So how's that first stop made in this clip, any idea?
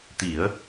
plain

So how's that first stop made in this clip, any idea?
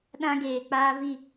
implosive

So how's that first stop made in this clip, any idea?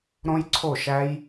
click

